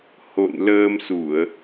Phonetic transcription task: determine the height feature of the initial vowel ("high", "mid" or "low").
mid